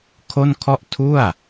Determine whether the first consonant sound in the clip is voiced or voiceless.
voiceless